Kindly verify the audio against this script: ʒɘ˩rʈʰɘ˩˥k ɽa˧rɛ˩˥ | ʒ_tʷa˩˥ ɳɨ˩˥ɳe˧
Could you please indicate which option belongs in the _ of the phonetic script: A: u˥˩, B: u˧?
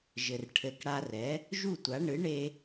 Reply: A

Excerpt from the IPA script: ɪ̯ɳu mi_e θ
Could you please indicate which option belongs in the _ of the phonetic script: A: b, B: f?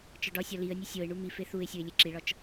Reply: B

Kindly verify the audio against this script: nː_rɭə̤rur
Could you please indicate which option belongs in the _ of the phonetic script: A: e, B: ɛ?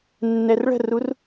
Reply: B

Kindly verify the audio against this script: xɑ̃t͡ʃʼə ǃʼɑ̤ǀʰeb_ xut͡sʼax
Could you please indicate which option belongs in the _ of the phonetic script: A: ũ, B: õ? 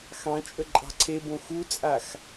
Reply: B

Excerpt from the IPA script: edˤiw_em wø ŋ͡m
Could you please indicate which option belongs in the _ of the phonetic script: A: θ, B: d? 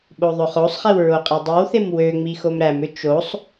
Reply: A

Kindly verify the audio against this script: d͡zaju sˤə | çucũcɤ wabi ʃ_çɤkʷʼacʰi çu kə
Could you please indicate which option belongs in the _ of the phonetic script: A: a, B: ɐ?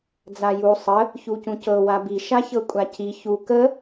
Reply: A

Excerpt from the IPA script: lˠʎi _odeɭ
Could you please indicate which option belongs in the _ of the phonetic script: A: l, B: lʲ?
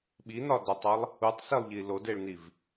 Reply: A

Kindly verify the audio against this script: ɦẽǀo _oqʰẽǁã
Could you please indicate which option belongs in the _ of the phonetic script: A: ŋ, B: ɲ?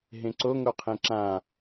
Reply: A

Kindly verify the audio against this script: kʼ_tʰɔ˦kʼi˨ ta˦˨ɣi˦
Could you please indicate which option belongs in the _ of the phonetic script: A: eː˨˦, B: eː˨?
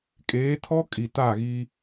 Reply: A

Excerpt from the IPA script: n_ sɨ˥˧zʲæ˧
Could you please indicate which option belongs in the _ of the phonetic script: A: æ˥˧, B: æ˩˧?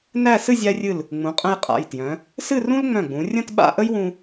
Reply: A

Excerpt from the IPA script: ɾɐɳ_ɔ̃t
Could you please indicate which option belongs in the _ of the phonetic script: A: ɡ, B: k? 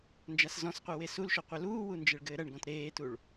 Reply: A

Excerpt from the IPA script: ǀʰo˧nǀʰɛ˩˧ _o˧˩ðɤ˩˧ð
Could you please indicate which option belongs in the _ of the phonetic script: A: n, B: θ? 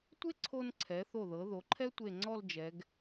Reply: B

